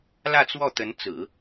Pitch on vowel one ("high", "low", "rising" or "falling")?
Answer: falling